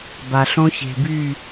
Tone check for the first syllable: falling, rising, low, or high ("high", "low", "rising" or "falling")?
low